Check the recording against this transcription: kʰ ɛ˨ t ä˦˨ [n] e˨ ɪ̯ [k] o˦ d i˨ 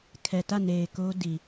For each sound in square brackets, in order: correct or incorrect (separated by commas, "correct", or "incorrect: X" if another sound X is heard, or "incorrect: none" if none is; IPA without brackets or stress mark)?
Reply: correct, correct